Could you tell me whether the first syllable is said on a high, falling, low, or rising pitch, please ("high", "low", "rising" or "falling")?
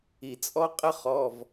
low